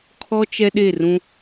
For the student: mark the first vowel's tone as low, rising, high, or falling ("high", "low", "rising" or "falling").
high